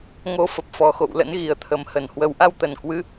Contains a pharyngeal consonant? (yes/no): no